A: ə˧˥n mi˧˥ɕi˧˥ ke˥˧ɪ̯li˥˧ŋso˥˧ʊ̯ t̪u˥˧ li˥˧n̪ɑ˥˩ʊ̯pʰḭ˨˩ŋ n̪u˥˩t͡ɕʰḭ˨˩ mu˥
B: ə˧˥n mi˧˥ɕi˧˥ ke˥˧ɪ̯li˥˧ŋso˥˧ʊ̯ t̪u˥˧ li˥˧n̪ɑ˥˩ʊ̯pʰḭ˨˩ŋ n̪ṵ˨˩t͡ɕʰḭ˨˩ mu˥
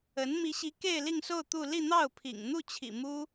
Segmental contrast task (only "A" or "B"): A